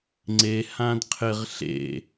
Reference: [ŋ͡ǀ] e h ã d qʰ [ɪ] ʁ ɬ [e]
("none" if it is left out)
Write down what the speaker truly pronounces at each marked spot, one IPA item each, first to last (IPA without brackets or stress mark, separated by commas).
ŋ͡ǀ, ɪ, ḛ